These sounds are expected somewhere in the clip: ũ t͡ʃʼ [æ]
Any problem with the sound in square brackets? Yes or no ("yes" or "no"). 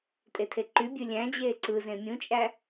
no